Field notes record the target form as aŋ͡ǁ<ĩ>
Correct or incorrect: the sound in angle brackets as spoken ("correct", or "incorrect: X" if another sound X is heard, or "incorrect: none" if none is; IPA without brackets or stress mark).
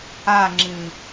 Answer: correct